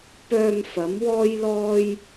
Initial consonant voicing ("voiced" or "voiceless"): voiceless